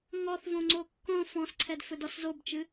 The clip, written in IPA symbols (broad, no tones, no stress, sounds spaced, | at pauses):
ŋ ɔ θ v õ ŋ͡ǀ o kː õ f ɔ̃ s ǀʰ ɛ d f ɵ d ɔ s z o b t͡ʃ ɨ